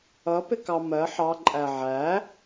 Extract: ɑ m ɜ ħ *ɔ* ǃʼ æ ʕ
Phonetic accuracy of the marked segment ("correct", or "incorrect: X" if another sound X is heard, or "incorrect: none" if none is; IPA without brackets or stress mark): incorrect: ɑ